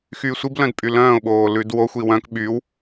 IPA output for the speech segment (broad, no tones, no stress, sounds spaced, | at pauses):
x yː sʷ i b l œ̃ d pʼ y l œ̃ː ʊ̯ ɓ oː l ʉ d w o xʷ i w œ̃ k ɓ y w